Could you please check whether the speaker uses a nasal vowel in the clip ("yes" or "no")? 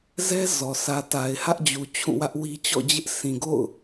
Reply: yes